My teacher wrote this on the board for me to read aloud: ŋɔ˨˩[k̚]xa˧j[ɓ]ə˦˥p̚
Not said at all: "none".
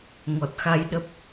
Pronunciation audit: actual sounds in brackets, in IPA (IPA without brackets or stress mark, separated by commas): t̚, ɗ